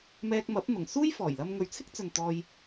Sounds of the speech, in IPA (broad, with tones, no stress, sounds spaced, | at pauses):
m ɛː˧ k̚ m ɐ˨˥ p̚ n̪ ʊ˨˩ ŋ s uː˥ j f ɔː˨˩ j l ɐ˧ m ŋ ɵ˨ ɥ t͡sʰ ɪ˥ k̚ t͡s ɵ˨ n t̪ ɔː˧ j